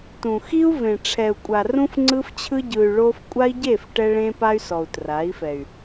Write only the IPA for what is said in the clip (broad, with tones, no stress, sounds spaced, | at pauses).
t ũ˨ x i˦ u̯ v ẽ˨ ʈ͡ʂʰ ɛ˨ u̯ kʷʼ a˨ r ũ˧ f ŋ͡ǀ ɯ˧ f t͡ɕʰ ɯ˧ ɟ ɯ˨ y̯ ɭ o˧ f kʷʼ a˦ i̯ ɟ e˦˨ f ʈ ɛ˧ ɭ ẽ˧ p a˧ y̯ s ɔ˨ u̯ t r a˨˦ i̯ f ɛ˨ y̯